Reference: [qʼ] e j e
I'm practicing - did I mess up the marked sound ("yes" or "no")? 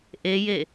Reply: yes